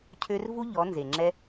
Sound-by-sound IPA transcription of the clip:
cʰø˦r vu˦ʎɔ˨˦ nze˨ŋ͡ǁɛ˦

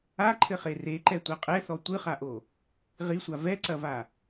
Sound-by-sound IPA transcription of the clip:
aǃʰɘχe reǃɛtʷa qʼɛθɔ tʷɨχaʔo | ʁisʷa vɛǀɐva

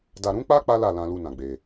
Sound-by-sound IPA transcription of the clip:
da˧ ɾũ˦k͡pa˦ k͡pa˦la˦˨lã˧lu˧ nã˧ɡ͡be˧

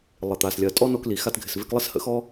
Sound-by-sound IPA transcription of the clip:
lˠɪ˨t̪a˨s lʲɜ˨tʼɔ˦ no˧kli˨ xa˧tɡʱɪ˨s ve˧klˠɪ˦shə̰˧xɔ˦

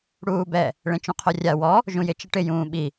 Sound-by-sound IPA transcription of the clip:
ɽuːbɛ | ɭẽt͡ʃũqʰorʲa wɔ | ʒũjɪ t͡ʃɪʈɪ jũːɓi

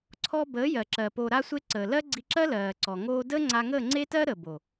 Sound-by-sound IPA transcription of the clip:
ǀʰɔ˧ bəː˨˦jɜ˨ǁɜ˨ poː˨ɾa˧sʷe˧ ǀəː˨lɜ˦ ɡ͡ǀi˧ǁɜ˦lɜː˨ǀɔ˨ ŋoː˧dəː˦ ŋ͡ǀa˧ŋəː˦˨ŋ͡ǀe˦tɜ˦ ɾə˨bo˨

